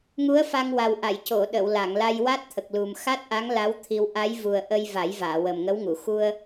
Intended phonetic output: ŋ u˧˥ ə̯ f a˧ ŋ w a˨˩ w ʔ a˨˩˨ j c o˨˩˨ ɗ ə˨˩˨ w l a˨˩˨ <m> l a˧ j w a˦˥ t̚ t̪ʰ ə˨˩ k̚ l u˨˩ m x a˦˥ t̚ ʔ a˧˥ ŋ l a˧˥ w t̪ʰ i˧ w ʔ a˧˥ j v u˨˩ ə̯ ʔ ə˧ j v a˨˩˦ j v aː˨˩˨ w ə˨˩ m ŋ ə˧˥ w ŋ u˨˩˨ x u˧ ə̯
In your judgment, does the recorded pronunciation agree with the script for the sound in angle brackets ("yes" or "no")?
no